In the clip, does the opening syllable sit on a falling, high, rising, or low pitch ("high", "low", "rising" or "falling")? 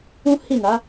high